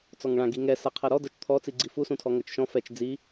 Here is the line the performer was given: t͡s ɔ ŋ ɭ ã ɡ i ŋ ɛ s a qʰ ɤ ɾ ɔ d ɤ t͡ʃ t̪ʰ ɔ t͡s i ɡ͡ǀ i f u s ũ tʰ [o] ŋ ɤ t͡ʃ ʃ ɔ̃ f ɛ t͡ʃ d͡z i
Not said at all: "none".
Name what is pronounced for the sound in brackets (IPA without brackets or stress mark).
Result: ɔ